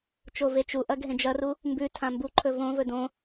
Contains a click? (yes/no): yes